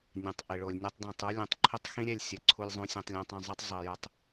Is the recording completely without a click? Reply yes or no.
no